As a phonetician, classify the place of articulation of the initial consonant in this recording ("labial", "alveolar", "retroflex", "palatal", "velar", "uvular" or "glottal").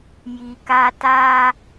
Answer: palatal